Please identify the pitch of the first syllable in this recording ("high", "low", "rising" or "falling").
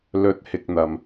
rising